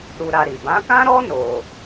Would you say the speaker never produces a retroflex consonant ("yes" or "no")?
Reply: yes